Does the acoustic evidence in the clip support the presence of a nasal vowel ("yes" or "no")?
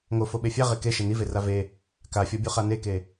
no